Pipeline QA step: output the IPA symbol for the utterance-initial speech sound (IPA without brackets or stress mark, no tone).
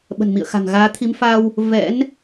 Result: ɓ